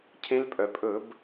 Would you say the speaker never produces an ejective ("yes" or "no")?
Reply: no